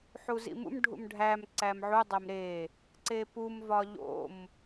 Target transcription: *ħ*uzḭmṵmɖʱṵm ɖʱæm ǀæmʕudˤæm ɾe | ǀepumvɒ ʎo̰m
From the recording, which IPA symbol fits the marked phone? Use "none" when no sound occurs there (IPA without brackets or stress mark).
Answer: ħ